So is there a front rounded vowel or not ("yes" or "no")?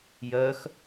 yes